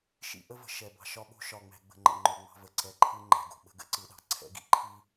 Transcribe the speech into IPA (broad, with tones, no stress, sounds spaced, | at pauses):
ʃ ḭ˦ ʔ ə˦ v ə̤˨ ʃ ɛ˨ b ɑ̤˨ ʃ ɒ˦ ɓ o̤˦ ʃ ɒ˨ ŋ͡m ɛ̤˨ ɡ͡b ə̤˨ ŋ͡ǃ ə̰˨ ŋ͡ǃ o˨ ŋ͡m ɑ̤˦ v ə˨ ǀ ɛ˨ ǃʰ ɯ˦ ŋ͡ǃ ɛ̤˨ ɡ o̤˨ ɓ ə̤˦ ɡ ə̰˦ ǀ ɯ˨ ɗ ɑ̤˦ ǀʰ ɛ̰˦ ɡ ḭ˦˨ ǃʰ i˦